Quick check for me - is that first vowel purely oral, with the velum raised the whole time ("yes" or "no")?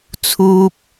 yes